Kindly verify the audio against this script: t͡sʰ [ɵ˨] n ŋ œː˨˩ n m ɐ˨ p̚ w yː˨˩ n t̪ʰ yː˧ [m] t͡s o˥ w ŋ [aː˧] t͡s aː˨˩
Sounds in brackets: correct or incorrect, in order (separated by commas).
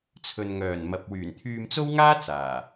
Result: correct, correct, incorrect